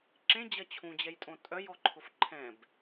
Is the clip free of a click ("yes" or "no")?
no